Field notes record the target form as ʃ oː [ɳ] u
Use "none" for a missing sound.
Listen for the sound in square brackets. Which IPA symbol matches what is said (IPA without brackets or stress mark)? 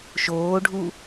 ɖʱ